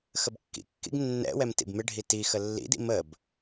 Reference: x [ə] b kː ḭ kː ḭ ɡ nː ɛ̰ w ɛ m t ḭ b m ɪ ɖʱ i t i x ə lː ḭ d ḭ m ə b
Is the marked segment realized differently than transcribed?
no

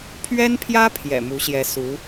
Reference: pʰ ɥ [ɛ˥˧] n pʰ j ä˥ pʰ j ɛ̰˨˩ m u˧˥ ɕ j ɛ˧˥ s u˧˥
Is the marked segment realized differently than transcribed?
yes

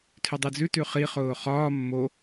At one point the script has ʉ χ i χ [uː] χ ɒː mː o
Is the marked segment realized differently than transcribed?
yes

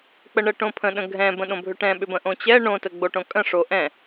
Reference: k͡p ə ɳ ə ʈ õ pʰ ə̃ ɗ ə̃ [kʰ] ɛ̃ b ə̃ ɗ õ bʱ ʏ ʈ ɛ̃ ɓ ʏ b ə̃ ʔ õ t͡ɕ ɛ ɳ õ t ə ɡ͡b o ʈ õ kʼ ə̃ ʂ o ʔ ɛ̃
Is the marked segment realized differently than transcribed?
yes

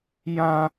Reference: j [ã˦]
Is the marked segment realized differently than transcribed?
no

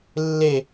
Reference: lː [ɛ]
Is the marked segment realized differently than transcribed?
yes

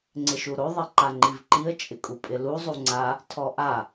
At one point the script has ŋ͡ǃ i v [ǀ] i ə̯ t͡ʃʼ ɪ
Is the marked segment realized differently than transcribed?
yes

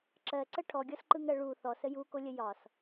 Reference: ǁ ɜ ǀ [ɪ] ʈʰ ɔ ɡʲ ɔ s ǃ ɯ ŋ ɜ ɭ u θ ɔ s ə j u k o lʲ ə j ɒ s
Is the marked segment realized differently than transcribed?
yes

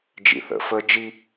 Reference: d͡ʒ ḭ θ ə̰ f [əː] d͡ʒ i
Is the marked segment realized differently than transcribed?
no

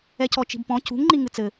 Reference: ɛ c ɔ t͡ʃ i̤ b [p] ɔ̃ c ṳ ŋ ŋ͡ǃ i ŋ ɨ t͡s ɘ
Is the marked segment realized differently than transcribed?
no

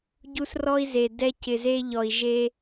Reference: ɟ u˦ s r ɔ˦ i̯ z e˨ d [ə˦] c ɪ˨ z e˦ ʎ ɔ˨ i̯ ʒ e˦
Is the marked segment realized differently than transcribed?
yes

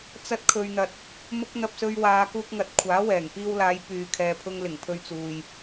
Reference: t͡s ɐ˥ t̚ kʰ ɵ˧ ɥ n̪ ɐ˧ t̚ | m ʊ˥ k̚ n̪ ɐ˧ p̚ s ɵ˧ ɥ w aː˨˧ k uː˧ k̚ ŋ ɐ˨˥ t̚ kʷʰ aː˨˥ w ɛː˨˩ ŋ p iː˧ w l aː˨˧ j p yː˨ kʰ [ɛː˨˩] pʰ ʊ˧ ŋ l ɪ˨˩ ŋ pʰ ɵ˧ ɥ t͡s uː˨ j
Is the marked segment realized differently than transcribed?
yes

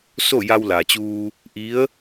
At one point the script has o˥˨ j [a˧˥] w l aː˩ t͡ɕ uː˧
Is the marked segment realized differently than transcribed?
yes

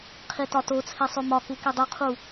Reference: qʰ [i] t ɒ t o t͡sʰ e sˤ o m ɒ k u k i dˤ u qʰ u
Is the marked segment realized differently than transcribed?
no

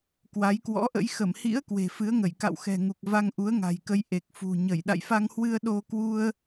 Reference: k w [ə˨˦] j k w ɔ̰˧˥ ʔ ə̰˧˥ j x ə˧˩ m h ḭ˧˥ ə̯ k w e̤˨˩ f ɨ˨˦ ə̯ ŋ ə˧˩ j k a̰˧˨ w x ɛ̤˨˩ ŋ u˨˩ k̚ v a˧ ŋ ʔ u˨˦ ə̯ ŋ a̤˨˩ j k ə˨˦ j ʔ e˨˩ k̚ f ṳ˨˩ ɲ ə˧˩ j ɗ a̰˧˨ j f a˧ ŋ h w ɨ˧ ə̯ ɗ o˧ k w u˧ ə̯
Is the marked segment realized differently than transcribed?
yes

